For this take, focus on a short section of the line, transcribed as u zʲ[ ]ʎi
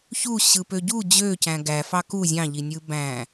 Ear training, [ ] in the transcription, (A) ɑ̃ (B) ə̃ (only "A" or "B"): A